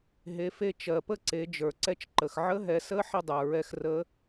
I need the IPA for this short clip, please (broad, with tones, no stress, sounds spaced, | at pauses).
ɦ e˩˧ f e˧ t͡ʃ ɜ˩ p ə˥ ǀ e˩˧ d͡ʒ ə˞˩ ǀ ɛ˧ t͡ʃ ǃ ə˩ x ʕ ə˧˥ ɦ ɛ˩˧ s ə˧˥ ħ ə˥ dˤ ə˞˩ ɹ ɛ˧ x r ə˧˥